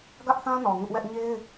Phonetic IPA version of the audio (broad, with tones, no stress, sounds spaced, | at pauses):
ɡ ä˦ ʔ θ ã˦ n ɔ˨ ŋ ʊ˦ ʔ w ɛ˦ ʔ ɲ e˦ ɪ̯